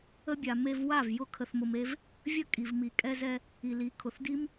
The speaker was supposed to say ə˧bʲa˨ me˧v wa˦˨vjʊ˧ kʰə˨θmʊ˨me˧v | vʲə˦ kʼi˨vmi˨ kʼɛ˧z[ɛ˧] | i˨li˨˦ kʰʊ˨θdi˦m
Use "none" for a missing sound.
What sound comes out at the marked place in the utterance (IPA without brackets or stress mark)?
ɛ˧